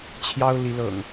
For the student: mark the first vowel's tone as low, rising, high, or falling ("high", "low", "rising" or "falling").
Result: high